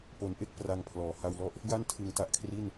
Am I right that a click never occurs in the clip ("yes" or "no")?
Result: yes